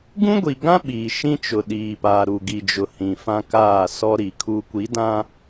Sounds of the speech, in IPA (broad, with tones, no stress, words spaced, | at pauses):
ɡũ˦ɡʷi˨ɡã˦ ɓiː˨ ʃĩ˦t͡ʃʊ˨ɗiː˨paː˨ ɾu˨ɡi˨d͡ʒʊ˨ hĩ˨fã˦kaː˦˨ sɔ˦ɾi˨kʰu˦ kʷi˨˦dã˦